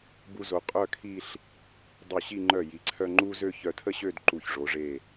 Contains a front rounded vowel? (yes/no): yes